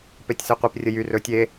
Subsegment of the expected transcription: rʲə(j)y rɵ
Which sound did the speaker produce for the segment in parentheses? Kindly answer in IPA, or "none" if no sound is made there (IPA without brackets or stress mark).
j